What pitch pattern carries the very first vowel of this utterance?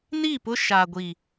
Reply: falling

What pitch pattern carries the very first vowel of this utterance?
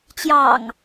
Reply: low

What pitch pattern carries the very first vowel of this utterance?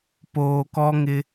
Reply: low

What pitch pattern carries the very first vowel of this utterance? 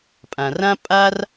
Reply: low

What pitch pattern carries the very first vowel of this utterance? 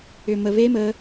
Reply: low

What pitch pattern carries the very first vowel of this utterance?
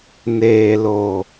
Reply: low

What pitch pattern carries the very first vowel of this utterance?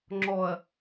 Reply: low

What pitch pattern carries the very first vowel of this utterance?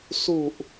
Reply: low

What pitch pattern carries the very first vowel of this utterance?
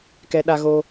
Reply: high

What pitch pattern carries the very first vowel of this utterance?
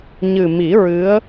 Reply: low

